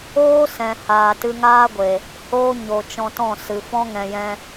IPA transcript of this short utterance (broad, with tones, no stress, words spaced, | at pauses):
oː˦sɛ̃˨ haː˨tɨ˧ŋaː˦ɡʷe˨ | hoː˦ ɲo˨t͡ʃɔ̃˧tɔ̃˦˨ sɨ˨fɔ̃˦ ŋɛ̃˨jɛ̃˧